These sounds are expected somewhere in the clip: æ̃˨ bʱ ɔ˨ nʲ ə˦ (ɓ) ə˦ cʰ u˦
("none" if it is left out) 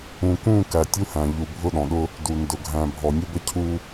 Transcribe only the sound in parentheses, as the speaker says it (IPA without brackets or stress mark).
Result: b